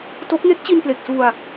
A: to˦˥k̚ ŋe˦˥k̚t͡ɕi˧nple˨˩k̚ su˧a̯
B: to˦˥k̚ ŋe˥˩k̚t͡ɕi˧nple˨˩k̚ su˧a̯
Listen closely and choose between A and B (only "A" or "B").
A